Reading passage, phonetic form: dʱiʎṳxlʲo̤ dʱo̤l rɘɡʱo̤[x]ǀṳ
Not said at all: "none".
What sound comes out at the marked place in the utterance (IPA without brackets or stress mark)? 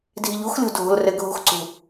x